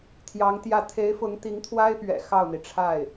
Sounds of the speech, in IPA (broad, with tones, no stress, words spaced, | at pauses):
t̪ʰjɑ˧˥ŋt̪jä˥˩ t̪ʰe˧˥ɪ̯fʊ˧˥ŋ t̪i˧˥ŋt̪ʰwa˥ɪ̯pɥɛ̰˨˩ xɑ˥˩ʊ̯n̪i˩ʈ͡ʂʰa˥˩ɪ̯